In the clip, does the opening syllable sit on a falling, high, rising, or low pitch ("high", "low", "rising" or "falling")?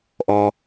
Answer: low